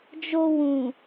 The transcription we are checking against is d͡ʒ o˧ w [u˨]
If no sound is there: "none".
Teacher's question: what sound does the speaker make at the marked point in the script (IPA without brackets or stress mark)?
ũ˨